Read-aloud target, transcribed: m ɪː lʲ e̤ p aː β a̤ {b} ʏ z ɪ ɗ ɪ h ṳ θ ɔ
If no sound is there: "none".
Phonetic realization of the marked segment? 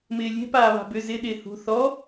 b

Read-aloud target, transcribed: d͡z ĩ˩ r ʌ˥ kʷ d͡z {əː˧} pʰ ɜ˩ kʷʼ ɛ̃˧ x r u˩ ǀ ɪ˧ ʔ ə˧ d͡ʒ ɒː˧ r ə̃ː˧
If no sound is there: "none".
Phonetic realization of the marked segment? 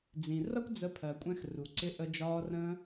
ə˧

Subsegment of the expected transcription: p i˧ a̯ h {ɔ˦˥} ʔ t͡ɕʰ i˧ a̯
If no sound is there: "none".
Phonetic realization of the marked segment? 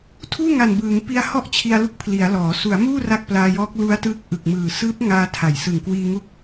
ɔ˥˩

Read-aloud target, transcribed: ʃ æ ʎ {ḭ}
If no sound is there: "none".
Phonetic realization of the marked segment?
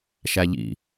ḭ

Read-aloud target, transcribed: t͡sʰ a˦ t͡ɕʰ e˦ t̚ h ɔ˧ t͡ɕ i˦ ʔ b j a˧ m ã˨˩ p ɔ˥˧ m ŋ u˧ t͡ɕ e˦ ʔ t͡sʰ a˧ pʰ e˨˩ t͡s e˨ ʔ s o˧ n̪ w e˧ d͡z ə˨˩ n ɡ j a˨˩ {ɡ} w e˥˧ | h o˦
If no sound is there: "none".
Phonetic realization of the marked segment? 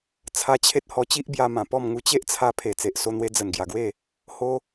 ɡ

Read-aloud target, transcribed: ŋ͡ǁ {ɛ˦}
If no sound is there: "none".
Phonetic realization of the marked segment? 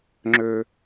ø˦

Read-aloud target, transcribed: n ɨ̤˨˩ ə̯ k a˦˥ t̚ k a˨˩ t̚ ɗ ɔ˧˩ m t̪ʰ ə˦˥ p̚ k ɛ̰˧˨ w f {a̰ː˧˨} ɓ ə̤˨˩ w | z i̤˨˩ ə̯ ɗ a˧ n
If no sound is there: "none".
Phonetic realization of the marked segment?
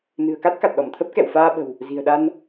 aː˧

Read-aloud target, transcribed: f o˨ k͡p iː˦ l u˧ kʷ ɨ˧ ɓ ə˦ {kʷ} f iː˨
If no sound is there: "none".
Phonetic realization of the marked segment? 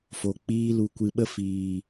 none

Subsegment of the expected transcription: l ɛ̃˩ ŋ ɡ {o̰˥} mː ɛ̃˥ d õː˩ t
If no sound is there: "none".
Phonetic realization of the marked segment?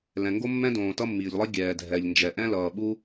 o˥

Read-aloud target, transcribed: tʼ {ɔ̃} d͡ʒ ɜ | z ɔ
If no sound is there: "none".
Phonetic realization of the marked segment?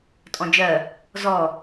ɔ̃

